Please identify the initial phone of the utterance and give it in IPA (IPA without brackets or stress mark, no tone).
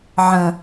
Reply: ʕ